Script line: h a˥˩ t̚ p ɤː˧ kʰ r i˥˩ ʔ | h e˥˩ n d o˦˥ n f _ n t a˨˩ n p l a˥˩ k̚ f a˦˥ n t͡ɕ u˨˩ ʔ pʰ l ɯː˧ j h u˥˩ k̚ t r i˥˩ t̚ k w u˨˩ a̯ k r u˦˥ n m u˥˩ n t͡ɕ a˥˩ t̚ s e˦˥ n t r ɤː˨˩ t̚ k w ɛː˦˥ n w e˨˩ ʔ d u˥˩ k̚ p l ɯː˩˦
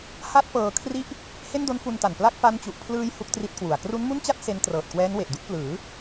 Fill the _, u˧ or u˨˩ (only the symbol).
u˧